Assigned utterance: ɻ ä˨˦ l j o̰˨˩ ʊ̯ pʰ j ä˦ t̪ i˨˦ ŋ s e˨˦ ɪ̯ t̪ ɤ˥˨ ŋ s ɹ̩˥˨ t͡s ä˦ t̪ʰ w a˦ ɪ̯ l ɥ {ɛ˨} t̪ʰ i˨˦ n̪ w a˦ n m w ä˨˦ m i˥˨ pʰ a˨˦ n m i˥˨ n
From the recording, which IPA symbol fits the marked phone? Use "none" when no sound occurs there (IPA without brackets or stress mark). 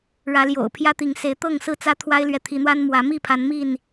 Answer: ɛ˨